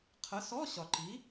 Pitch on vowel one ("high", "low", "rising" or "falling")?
rising